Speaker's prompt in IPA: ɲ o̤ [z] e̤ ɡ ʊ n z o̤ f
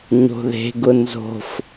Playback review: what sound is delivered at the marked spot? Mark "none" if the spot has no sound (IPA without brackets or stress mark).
ð